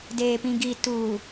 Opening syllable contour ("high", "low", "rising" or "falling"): low